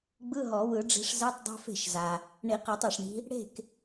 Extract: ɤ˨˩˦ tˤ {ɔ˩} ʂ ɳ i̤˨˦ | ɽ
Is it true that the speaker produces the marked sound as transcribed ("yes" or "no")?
yes